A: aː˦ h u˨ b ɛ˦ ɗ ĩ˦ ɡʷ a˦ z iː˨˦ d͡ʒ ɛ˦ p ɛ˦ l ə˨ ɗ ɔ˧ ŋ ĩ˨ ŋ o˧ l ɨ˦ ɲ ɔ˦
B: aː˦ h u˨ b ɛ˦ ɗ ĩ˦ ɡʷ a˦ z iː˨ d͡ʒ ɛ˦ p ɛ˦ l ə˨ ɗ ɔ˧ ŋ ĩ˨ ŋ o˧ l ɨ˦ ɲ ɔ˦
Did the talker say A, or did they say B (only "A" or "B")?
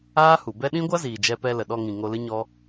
B